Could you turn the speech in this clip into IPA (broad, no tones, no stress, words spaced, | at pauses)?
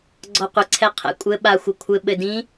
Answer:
ɡ͡ǀɔqʷəǀʰɛ qʰɛ̰kʷʼɘ ɓaxʷɘkʷʰɘ ɓɘdĩ